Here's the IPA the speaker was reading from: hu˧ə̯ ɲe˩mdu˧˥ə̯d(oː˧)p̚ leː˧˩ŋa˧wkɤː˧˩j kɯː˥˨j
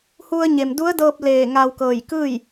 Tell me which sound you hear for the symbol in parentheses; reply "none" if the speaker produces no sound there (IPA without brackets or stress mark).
ɤː˧